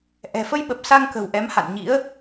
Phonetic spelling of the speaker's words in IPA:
ʔ ɛ̤˨˩ f ə˧ j ɓ ə˨˩ p̚ s a˧ ŋ k ə̤˨˩ w ʔ ɛ˨˦ m h a̰˧˨ n ɲ ḭ˧˥ ə̯

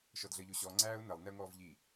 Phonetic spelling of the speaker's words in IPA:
ʃ ɔ d ɮ əː ʎ o ɕ ɔ ŋ͡ǀ æː ʊ̯ n ə lˠ n ɛ ʊ̯ ŋ ɔː v ʎ i

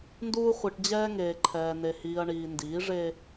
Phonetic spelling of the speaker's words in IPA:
n d uː˦ χʷ i˨ ʈ d͡ʑ ɛː˦ ŋ eː˨ ǃʰ ɛː˨ n e˨ h iː˨ ɐ̯ ɳ iː˨ n d iː˨˦ ʐ e˦

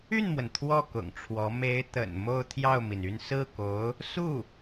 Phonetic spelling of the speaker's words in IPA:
y˥˩ n m w ə˩ n t̪ʰ w ɔ˥˩ k ʊ̰˨˩ ŋ ʈ͡ʂʰ w ɔ˧˥ m e˧˥ ɪ̯ t̪ ə̰˨˩ n m o˥˧ ʊ̯ t̪ʰ j ɑ˥˩ ʊ̯ m i˩ n y˥˧ n s ɹ̩˥˩ k o˧˥ ʊ̯ | s u˥˩

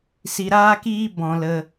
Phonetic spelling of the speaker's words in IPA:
s i˧ ɾ aː˦ k iː˦ b ɔ̃˧ l ə˧

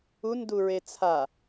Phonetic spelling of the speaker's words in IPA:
u n d u ɹ e t͡sʰ a

